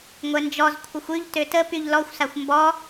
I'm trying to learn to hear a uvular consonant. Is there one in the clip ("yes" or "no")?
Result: no